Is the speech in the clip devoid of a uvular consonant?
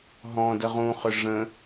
no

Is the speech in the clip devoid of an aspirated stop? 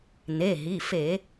yes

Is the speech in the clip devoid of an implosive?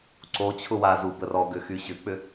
yes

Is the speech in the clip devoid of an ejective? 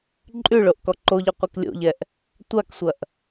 no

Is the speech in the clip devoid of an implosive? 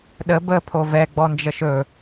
no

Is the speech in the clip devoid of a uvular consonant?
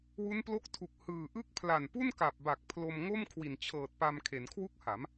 yes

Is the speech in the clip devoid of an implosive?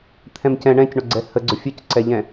yes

